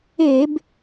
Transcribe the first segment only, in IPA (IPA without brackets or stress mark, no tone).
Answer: e